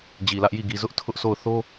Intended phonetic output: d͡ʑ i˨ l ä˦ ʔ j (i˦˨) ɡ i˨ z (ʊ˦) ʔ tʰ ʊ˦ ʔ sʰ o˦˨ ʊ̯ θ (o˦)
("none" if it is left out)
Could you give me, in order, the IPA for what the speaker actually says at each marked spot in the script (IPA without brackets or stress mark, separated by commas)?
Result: i˦˨, ʊ˦, o˦